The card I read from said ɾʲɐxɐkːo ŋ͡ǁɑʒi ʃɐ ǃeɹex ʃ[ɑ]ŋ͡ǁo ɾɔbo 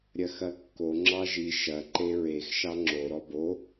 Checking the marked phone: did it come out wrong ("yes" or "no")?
no